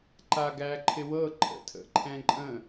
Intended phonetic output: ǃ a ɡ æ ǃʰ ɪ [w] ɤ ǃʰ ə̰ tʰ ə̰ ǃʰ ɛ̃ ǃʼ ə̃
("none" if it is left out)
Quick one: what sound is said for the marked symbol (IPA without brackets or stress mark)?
w